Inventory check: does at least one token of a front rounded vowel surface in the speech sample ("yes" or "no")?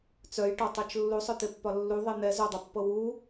yes